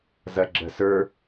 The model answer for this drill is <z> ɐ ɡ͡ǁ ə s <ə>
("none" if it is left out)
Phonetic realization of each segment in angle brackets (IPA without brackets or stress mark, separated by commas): z, ə˞